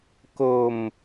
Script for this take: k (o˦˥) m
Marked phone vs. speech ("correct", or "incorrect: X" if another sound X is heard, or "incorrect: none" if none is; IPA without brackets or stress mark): incorrect: o˧